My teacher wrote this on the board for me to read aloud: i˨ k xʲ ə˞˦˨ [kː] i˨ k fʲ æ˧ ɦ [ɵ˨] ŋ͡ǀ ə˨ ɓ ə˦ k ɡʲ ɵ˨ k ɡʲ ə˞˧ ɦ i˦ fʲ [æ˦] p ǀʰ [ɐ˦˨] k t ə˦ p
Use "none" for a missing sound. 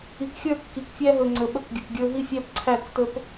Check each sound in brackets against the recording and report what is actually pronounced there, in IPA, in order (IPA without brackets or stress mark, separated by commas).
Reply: kː, ɵ˨, æ˦, æ˦˨